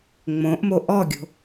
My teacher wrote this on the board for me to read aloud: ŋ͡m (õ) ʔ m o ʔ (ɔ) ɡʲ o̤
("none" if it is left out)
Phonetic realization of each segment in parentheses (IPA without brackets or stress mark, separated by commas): õ, ɔ